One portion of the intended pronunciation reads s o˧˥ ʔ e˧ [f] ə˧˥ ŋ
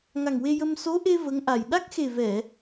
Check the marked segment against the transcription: incorrect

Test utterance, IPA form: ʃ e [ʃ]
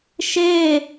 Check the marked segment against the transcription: incorrect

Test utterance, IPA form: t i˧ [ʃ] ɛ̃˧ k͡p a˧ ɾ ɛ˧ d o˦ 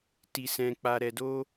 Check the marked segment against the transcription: incorrect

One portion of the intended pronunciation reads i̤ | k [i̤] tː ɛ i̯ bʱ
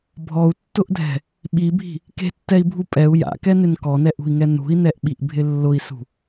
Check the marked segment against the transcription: incorrect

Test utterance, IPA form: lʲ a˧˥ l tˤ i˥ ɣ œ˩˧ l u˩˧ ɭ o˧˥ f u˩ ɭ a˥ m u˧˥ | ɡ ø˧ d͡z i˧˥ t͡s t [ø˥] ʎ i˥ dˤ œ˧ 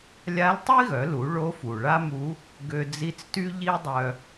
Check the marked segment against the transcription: incorrect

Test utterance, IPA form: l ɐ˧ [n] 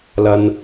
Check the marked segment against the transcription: correct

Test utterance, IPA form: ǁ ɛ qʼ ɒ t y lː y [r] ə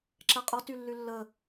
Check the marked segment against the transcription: incorrect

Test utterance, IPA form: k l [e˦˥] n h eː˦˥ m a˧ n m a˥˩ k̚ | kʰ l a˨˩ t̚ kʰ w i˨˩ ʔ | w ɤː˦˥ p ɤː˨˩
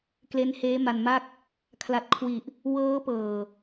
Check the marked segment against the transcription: correct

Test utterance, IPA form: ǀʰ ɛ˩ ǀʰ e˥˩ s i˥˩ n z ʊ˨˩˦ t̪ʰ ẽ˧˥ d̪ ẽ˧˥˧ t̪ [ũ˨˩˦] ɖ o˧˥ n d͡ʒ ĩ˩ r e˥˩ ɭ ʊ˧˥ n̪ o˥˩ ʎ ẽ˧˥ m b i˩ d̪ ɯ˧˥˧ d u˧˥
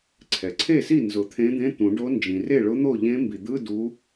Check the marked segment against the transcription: correct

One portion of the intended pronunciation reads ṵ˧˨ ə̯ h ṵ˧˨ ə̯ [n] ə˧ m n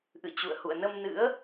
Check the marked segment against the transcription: correct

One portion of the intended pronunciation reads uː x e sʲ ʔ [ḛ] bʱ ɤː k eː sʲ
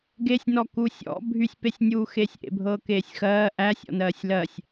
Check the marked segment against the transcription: correct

